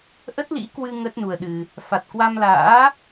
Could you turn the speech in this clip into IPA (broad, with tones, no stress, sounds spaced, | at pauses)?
ʔ ə˦˥ t̚ l ḭ˧˥ k w ɨ˧ ŋ ə˦˥ t̚ n u˧ ə̯ ɗ ɨ˧ | f a˨˩ t̚ k w a˧ m l a̰ː˧˥